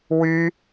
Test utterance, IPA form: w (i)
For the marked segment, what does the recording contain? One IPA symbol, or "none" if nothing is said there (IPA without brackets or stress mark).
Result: y